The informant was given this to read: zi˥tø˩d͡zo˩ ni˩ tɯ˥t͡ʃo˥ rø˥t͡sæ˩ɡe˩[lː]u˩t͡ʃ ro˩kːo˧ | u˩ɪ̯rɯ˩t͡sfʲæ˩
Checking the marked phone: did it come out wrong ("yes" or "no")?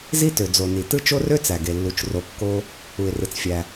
no